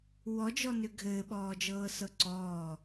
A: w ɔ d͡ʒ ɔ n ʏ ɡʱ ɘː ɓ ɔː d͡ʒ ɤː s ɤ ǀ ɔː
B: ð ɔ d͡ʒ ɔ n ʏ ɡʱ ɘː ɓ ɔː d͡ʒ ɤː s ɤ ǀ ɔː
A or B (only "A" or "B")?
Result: A